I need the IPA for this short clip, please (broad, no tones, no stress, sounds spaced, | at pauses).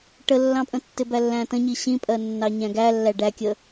ʈ ə lː ɑ̃ pʼ ə̃ tː ɪ b æ lː æ̃ t ə̃ ɲ i ɕ ĩ pʼ ɜ nː ɑ ɲ æ̃ ɡ æ lː æ ɖ æ kʲ ə